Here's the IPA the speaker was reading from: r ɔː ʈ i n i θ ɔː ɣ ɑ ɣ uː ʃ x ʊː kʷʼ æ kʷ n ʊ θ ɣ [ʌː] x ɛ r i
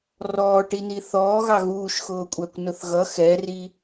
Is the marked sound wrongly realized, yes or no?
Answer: yes